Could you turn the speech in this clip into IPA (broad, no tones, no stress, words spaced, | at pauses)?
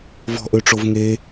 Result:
vɔ̤ʔøʈ͡ʂov ŋe